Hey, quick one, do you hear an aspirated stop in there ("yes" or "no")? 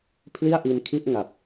yes